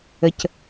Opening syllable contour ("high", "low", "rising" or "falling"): low